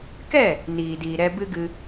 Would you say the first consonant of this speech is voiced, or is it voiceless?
voiceless